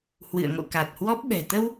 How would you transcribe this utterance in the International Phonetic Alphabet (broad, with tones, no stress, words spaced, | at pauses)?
hwɨ̰˧˨ə̯ŋo̰˧˨ ka˨˩t̚hwɔ˦˥p̚ɓɛ̤˨˩ t̪ə˧w